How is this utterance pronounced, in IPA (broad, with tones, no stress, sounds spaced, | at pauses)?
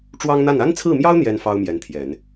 ʈ͡ʂ w ɑ˥ ŋ n̪ a˥˩ n a˥ n t͡sʰ ɹ̩˥˩ m j ɑ˥ ʊ̯ n̪ j ɛ˥ n f ɑ˥ ʊ̯ m j ɛ˧˥ n t̪ʰ j ɛ˨˩˦ n